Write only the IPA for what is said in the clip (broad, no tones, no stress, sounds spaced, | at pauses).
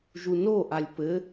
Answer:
ʒ u n o ʔ a lʲ p ɘ